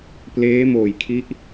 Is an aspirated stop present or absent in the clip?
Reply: present